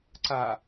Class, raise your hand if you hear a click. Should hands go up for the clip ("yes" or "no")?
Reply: yes